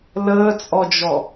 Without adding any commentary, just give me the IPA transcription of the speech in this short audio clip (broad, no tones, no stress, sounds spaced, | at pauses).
l əː t͡sʼ ɔ d͡ʒ ɔ